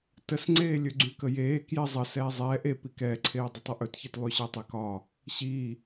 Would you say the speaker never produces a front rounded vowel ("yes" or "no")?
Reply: no